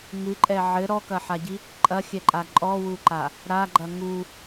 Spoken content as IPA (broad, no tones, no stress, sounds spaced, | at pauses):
ŋ ɨ ǃʼ ɛ ʕ ɘ ɾ ɔ k ɐ ħ a ɟ i | ǃʼ ɐ xʲ ɛ ǃʼ a ǃʼ ɔ w u ǃ a | ɾ a ɡ͡ǃ ɐ ŋ u